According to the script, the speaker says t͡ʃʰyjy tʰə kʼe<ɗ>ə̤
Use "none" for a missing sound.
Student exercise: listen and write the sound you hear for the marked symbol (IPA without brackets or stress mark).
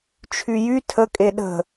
ɗ